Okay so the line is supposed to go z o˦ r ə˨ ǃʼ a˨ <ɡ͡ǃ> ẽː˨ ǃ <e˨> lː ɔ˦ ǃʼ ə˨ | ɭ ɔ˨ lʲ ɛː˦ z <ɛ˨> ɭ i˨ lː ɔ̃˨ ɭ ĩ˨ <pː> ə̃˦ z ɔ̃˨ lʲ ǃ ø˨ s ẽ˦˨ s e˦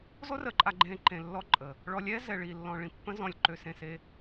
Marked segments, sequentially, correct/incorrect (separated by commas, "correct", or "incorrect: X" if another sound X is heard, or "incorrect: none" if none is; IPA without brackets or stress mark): correct, incorrect: ẽ˨, correct, correct